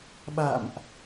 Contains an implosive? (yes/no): yes